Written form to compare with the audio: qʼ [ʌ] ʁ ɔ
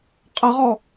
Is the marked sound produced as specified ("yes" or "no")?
yes